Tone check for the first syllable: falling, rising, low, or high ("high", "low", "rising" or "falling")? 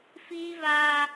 high